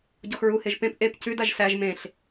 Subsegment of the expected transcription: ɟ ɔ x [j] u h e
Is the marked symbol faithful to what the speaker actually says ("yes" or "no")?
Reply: no